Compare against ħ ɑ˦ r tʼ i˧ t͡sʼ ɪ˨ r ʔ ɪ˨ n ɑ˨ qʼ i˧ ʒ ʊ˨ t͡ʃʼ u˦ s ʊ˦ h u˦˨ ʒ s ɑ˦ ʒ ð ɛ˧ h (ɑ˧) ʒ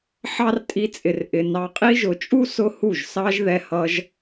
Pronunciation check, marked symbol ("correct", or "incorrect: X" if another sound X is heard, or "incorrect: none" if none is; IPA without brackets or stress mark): incorrect: ʌ˧